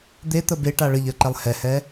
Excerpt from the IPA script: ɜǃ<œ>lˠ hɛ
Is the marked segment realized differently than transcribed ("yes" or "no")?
yes